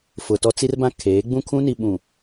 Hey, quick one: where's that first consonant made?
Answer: lips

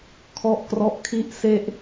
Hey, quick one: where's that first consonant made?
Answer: velum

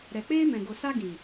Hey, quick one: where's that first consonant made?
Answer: tongue tip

